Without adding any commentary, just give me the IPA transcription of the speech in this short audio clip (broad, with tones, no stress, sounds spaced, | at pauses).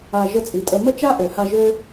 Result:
a˧ ʒ ə˧ t͡sʼ i˨ tʼ ə˧ m ə˦ t͡ʃ a˦ ʔ ø˨ h a˧ ʒ ø˦